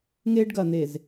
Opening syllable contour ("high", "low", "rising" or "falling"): high